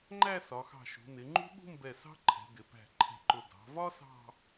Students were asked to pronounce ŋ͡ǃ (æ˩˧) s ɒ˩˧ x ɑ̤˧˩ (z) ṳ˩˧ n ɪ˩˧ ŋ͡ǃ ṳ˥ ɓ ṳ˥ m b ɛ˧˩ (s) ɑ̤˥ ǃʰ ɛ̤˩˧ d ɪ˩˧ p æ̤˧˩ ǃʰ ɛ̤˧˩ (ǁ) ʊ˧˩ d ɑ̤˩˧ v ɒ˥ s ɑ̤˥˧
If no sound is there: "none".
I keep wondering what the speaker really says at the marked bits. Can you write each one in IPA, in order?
æ˥˧, ʃ, s, ǃ

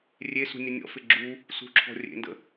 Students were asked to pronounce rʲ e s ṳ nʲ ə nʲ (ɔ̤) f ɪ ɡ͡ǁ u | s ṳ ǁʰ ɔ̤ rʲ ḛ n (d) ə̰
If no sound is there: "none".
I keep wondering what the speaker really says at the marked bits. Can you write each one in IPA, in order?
ɔ̰, d

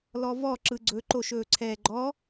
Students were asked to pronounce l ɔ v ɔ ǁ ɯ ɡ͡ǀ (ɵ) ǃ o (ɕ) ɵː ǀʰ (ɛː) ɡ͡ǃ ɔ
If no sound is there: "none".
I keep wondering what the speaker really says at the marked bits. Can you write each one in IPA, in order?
ɵ, ʃ, ɛː

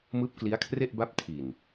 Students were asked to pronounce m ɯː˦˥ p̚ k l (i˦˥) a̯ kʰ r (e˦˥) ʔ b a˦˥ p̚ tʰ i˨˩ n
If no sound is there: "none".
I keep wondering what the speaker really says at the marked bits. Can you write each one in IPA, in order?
i˦˥, e˥˩

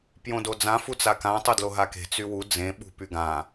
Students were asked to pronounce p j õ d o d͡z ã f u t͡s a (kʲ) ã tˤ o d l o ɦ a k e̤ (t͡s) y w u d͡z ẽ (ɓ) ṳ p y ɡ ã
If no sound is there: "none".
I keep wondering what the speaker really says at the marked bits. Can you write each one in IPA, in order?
k, t͡s, ɓ

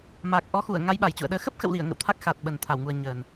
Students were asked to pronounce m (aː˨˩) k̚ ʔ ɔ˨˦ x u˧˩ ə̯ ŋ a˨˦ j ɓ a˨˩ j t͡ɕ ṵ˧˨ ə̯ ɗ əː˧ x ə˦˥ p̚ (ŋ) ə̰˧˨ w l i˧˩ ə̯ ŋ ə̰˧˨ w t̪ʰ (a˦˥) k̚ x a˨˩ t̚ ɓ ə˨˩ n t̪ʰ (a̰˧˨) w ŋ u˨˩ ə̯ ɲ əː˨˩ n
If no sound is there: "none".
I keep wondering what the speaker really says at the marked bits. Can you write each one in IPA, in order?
aː˨˩, x, a˦˥, a˧˩

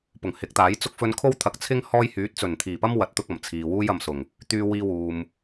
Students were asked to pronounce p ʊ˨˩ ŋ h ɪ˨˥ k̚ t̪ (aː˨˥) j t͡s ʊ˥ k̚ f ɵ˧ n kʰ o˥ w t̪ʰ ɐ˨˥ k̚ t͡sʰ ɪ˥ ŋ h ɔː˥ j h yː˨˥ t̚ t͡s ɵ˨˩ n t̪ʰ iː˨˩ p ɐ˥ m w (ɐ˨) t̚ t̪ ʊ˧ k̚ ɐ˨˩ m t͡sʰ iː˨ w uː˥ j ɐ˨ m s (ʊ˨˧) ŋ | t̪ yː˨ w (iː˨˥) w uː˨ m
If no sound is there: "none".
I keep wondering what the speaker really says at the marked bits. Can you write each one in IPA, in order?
aː˨˥, ɐ˨˥, ʊ˨˩, iː˧

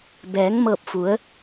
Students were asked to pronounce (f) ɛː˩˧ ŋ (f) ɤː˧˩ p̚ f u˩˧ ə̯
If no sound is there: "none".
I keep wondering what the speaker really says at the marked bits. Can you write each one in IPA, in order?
b, m

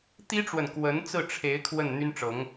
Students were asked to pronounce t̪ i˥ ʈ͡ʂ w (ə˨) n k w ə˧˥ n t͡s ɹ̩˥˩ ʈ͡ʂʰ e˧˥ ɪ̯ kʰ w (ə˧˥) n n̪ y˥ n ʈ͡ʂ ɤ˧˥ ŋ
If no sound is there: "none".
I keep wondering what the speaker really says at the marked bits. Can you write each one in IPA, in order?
ə˨, ə˥˩

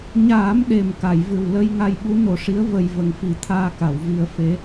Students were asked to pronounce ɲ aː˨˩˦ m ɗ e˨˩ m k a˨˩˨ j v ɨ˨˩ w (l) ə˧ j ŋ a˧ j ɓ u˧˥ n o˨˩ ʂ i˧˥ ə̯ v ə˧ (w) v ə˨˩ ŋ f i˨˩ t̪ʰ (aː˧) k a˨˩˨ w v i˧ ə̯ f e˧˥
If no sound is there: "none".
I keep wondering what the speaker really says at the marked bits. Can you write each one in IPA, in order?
l, j, aː˧

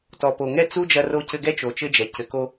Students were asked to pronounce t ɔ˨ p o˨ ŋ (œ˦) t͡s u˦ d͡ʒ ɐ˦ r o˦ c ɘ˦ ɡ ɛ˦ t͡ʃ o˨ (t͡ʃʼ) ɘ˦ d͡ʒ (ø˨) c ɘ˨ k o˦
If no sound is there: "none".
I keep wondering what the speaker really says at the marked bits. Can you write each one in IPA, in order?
ɛ˦, t͡ʃ, ɛ˨

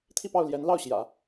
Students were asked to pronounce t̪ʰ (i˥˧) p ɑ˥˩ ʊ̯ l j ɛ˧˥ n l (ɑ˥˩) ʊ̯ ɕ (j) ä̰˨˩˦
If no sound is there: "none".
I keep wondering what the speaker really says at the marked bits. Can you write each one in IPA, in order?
i˥˧, ɑ˥˩, j

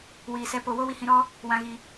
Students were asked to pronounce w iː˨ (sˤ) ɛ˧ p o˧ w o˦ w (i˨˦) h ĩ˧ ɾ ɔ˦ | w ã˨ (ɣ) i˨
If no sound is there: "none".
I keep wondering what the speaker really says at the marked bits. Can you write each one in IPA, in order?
s, i˧, ɣ

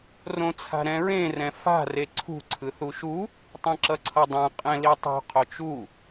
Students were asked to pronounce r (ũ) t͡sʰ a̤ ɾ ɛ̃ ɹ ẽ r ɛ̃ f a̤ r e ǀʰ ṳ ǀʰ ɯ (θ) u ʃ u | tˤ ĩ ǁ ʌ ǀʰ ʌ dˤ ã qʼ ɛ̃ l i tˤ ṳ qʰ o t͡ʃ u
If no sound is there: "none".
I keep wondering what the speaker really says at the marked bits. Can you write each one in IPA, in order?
õ, θ

